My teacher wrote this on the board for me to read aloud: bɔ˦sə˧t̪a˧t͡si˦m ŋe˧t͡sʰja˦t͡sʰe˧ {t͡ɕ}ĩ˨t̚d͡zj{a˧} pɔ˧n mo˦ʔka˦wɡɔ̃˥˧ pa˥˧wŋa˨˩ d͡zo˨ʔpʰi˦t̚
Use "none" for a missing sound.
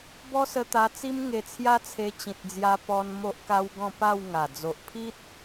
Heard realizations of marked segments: t͡ɕ, a˧

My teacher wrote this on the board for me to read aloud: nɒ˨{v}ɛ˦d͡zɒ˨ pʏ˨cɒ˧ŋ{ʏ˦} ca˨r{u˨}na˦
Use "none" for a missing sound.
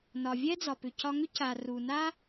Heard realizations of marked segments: vʲ, ʏ˦, u˨

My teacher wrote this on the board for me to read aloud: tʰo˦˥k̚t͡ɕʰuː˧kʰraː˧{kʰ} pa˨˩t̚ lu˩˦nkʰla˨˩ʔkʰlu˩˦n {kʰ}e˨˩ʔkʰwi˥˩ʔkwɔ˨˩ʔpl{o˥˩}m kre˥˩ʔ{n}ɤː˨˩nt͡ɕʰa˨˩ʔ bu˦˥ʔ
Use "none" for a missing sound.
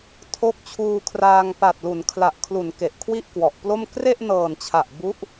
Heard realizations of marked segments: ŋ, k, o˥˩, n

